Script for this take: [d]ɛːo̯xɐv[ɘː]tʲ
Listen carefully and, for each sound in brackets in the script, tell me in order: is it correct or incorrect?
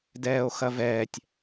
correct, incorrect: ɛː

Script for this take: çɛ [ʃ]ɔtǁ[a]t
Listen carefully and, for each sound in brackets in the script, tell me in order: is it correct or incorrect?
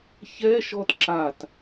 correct, correct

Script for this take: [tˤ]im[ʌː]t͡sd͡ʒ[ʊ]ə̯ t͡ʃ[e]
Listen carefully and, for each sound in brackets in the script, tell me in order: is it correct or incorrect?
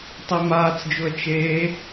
correct, incorrect: aː, correct, incorrect: eː

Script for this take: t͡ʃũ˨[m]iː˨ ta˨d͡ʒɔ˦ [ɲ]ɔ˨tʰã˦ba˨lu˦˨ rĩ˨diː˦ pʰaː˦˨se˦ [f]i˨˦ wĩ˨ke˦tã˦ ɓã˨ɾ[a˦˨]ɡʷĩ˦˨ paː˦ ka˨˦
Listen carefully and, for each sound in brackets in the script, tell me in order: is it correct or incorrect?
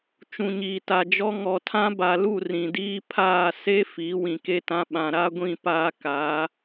incorrect: ɲ, incorrect: ŋ, correct, incorrect: a˦

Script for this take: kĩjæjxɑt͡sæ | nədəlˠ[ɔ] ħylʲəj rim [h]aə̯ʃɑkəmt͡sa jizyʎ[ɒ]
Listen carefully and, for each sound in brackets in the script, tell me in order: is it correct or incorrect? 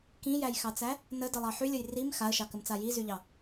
incorrect: ɑ, incorrect: x, incorrect: ɑ

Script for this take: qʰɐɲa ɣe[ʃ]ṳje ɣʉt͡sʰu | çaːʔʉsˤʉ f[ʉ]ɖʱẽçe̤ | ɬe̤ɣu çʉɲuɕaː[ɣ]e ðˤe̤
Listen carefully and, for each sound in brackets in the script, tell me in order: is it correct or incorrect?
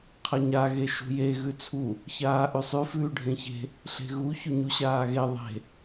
correct, incorrect: ʉː, correct

